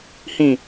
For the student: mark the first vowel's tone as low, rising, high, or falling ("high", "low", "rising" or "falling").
low